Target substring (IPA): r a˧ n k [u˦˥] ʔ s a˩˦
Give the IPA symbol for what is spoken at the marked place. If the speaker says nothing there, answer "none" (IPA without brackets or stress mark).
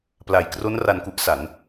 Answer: u˦˥